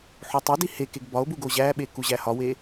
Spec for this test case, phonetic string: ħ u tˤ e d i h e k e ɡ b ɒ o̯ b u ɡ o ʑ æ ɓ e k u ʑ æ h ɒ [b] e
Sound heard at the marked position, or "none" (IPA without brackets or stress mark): w